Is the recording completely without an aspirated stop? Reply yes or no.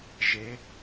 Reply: yes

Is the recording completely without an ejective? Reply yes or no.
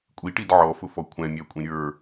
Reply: no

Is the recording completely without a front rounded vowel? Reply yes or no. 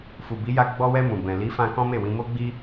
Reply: yes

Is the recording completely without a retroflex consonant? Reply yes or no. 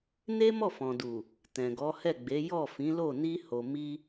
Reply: yes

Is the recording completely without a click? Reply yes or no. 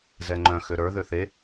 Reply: no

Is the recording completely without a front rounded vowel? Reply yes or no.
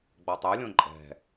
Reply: no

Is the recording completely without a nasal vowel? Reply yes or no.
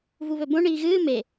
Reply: no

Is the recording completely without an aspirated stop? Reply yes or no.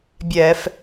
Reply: yes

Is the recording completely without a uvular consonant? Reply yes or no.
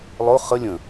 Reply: no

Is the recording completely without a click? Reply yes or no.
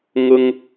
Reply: yes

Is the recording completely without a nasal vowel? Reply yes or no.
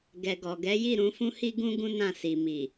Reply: no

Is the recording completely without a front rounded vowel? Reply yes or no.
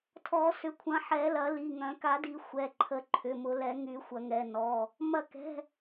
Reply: no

